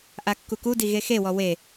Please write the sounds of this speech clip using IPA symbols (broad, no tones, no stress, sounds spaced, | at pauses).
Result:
ʔ a kː u k u d i ɣ e x e w ɔ w e